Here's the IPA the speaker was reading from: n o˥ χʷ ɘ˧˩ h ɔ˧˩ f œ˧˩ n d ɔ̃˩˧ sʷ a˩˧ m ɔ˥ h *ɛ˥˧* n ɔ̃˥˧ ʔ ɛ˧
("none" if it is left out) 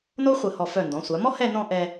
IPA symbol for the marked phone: ɛ˥˧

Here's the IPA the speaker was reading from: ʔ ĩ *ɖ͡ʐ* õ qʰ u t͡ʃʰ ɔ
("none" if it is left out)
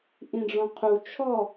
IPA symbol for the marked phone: ɖ͡ʐ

